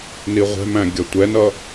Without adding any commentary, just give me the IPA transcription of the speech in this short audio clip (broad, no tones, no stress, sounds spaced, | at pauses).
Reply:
n i ʁʷ ɛ̤ m æ̃ ɡʲ ʌ tʷ ɛ n ʌ